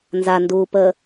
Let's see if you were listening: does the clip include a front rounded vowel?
no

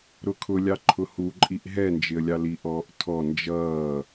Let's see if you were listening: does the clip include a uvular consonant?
no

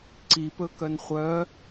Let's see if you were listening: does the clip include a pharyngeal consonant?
no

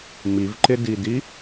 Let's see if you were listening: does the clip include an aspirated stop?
no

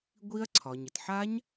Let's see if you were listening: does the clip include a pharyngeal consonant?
yes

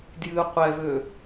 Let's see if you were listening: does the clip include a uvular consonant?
yes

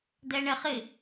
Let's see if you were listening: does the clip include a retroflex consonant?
yes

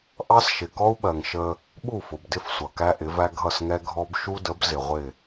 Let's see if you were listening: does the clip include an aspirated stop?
no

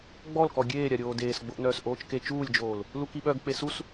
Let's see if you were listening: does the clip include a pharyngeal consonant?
no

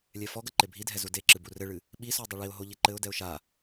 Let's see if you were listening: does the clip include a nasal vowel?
no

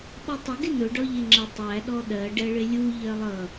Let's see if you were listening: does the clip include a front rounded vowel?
no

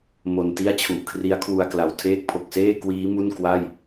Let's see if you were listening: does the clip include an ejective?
no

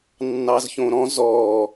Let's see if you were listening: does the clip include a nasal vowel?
yes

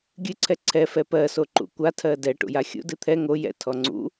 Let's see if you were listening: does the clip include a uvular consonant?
no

